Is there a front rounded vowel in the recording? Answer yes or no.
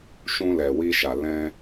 no